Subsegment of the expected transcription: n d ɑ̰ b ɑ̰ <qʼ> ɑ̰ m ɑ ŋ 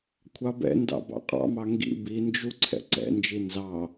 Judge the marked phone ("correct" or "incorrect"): correct